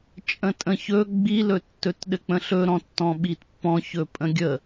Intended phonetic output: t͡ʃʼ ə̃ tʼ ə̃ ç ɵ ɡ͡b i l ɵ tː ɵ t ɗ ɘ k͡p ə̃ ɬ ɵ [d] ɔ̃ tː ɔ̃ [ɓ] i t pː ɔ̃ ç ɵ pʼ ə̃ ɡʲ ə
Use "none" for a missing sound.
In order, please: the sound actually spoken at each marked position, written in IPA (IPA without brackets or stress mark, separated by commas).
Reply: ɾ, ɓ